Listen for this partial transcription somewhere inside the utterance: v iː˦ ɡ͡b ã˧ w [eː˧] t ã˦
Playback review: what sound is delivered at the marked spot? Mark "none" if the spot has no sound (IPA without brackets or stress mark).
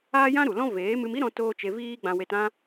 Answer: e˧